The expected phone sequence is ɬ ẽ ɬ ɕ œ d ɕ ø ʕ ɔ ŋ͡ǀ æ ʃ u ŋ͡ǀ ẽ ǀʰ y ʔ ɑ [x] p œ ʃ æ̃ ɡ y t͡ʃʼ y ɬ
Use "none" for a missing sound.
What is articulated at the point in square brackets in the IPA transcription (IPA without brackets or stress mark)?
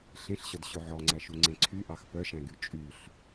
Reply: x